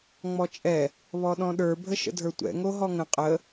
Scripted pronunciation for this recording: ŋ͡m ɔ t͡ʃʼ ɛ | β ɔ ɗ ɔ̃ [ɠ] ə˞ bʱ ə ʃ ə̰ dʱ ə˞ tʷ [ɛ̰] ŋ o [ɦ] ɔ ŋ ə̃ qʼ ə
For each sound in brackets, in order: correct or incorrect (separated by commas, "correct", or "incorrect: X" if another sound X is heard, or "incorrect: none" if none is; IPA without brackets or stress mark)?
incorrect: ɗ, correct, correct